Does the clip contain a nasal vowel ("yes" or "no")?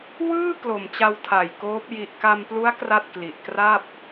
no